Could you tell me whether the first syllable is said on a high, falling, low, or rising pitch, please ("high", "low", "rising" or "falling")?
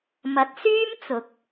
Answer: rising